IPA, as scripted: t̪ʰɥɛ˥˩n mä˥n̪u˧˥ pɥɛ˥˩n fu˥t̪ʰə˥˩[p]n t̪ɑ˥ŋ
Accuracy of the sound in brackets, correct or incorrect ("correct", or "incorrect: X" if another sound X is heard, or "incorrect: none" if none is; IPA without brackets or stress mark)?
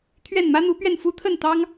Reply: incorrect: none